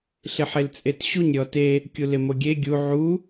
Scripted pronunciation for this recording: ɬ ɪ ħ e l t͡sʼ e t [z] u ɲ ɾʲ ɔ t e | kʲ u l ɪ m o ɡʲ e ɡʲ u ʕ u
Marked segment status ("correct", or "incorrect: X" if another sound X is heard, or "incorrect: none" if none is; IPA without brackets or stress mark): incorrect: ɕ